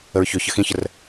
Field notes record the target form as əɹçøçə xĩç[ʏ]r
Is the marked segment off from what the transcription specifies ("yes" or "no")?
yes